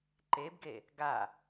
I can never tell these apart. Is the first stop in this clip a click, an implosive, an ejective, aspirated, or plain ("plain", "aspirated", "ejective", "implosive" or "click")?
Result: click